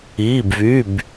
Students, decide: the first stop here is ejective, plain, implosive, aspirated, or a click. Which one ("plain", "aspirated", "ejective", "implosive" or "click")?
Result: plain